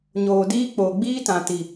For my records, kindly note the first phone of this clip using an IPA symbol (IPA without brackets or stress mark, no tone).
ɲ